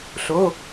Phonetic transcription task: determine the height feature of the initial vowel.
mid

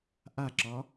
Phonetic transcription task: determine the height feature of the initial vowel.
low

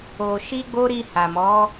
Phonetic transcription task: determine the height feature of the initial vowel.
mid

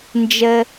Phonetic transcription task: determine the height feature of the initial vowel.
mid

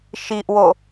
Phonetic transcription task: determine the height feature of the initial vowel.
high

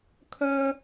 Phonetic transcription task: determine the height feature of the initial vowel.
mid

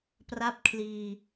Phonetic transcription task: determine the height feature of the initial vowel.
low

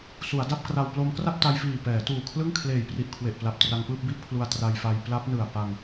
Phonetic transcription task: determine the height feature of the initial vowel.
high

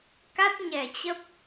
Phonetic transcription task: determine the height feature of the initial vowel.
low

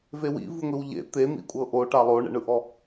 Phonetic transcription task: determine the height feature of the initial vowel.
mid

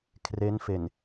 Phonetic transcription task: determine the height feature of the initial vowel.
mid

